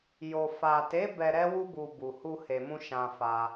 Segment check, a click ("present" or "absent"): absent